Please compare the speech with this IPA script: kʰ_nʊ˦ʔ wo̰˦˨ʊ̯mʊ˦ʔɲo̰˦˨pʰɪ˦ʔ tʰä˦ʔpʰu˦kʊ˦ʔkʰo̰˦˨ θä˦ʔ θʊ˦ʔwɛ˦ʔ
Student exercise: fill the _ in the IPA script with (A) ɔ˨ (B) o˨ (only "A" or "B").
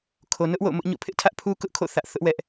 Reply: B